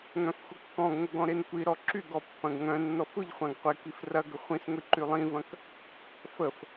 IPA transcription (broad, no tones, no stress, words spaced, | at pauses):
ŋœ̃fxʷəkːɔ̃ɡŋʷə ɡɔ̃ɾenkʷiɾɔ ǁyɡɔ pːɐ̃ɡŋœ̃nːɔf ʊʎχʷãɡ qʷɪkif rɐɡə χʷĩsŋʷi ǃylˠĩvɐ̃k | fəf